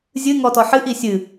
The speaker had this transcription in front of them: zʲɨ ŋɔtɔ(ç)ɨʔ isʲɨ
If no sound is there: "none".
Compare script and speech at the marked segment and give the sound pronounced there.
ħ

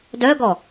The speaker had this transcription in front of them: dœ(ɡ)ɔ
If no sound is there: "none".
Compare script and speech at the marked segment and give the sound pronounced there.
ɡ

